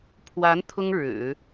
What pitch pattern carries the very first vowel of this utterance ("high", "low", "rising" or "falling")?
rising